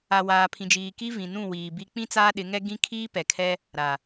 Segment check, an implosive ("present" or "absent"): present